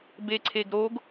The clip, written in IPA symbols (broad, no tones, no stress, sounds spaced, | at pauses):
b e ǀʰ e ɡ ɾ o ɡ